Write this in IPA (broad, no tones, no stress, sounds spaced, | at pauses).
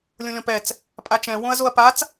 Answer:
lʲ õ lʲ ɔ̃ p ɛ t͡s | pʼ a t͡ʃ ɛ̃ w õ ɐ̯ z o ɐ̯ p a t͡s